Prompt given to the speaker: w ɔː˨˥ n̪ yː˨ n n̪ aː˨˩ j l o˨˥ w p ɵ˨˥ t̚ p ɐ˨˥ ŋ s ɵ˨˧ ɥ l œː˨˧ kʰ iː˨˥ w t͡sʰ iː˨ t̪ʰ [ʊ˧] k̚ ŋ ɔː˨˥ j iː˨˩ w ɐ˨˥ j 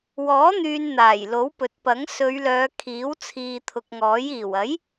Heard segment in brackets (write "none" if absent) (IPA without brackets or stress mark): ʊ˨